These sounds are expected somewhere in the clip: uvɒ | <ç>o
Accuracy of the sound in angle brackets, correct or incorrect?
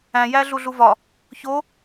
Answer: correct